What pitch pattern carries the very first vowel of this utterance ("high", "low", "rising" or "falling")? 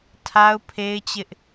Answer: high